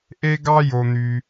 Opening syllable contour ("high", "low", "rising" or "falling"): high